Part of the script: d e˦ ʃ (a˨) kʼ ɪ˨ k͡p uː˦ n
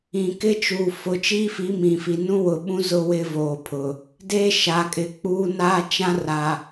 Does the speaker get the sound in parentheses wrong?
no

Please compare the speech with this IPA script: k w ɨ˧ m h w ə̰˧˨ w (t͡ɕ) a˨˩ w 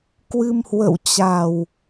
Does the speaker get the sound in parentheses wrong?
no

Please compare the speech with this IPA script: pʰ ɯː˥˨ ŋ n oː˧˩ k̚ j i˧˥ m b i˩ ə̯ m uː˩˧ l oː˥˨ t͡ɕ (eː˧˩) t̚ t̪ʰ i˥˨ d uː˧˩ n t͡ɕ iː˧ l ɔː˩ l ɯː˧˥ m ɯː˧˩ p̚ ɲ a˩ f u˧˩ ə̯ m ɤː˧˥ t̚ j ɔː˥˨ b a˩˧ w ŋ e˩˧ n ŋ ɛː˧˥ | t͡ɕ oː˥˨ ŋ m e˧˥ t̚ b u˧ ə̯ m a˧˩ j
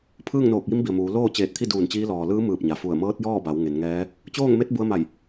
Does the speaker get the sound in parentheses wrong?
no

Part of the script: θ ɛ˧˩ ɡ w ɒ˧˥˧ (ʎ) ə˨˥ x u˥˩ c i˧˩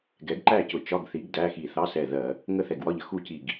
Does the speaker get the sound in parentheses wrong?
no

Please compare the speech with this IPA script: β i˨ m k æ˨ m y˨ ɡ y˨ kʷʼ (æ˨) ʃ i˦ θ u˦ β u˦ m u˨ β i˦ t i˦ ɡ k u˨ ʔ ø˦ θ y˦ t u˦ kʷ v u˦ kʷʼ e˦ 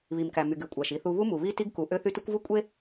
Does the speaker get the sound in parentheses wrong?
no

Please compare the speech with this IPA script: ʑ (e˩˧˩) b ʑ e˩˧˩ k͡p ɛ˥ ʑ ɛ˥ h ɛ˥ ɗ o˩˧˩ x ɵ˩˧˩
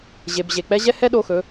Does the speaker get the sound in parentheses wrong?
no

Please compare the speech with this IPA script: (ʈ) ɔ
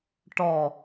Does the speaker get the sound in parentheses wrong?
no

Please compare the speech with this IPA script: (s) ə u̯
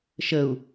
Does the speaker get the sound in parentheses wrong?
yes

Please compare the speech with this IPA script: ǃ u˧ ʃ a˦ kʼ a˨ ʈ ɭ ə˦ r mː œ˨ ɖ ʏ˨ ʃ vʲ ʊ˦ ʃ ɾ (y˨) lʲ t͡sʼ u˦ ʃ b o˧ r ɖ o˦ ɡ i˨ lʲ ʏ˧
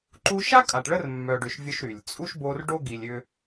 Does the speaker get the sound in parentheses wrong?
no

